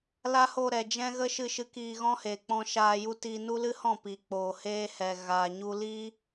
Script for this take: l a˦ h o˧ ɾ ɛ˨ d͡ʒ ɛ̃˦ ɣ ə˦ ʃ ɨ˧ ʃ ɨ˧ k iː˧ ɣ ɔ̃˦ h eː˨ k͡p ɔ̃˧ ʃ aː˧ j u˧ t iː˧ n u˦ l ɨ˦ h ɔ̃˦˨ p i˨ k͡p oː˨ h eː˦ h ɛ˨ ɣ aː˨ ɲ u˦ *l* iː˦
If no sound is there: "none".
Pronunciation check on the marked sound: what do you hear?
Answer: l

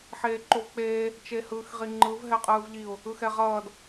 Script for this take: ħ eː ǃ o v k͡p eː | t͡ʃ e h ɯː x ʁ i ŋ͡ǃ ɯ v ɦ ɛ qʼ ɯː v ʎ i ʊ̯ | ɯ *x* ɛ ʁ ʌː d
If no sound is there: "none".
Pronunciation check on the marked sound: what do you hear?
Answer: x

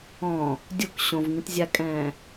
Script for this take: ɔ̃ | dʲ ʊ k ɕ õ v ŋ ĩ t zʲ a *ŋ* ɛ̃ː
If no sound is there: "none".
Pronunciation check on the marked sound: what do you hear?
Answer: kʼ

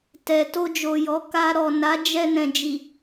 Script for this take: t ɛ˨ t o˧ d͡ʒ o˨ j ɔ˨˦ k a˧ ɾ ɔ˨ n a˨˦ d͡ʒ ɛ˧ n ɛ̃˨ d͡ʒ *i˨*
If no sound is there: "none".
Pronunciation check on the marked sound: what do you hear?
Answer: i˨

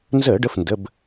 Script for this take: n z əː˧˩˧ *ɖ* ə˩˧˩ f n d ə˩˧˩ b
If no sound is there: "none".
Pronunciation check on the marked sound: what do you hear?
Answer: ɖ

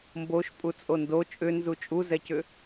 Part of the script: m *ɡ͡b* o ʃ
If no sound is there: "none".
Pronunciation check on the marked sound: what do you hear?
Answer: b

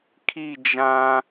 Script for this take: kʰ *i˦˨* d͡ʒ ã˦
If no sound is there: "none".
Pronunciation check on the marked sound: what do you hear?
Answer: i˦˨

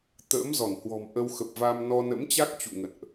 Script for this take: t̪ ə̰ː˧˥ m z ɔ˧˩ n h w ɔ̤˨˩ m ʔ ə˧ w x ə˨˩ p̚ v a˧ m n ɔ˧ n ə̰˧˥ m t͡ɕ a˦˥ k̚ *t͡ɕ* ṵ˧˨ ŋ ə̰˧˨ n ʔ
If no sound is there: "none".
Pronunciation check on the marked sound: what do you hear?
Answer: t͡ɕ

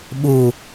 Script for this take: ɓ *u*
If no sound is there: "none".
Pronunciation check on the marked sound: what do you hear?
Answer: u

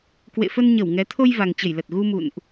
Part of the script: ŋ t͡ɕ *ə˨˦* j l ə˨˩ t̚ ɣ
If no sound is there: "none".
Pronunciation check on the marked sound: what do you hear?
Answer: ə˧˩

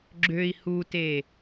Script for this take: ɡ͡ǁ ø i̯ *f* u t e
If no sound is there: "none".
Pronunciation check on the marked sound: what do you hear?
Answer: h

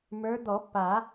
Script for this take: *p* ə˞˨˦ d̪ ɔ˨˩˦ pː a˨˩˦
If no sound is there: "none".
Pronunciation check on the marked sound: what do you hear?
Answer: m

